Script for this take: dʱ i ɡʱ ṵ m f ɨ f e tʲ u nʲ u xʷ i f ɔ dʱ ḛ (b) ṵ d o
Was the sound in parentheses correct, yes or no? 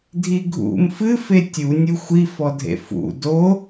no